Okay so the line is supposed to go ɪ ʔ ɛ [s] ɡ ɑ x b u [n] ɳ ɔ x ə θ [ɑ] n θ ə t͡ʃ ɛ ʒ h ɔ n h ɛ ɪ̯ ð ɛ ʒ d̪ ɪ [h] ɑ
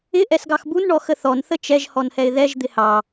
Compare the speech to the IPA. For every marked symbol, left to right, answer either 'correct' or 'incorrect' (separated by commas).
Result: correct, correct, incorrect, correct